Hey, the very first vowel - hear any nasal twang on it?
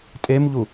no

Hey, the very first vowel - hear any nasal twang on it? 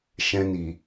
yes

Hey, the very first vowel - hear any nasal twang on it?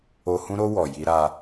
no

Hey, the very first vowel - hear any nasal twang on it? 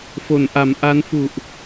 no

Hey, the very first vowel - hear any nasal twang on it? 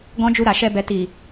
yes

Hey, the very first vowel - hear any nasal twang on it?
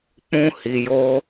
yes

